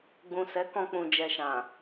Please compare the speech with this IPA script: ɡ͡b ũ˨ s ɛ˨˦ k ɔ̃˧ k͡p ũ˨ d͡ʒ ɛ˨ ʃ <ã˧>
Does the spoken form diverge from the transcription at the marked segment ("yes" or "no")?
yes